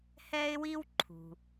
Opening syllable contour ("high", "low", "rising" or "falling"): high